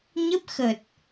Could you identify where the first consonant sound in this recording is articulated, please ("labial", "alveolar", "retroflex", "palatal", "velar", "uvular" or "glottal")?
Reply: palatal